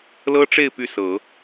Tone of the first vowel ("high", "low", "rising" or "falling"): high